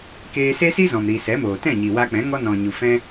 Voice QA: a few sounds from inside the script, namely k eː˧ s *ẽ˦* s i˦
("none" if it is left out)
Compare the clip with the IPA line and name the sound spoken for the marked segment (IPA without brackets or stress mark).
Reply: e˦